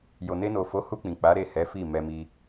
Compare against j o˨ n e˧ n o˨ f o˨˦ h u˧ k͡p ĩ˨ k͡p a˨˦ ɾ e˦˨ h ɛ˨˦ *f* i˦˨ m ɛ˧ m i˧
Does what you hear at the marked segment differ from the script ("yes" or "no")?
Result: no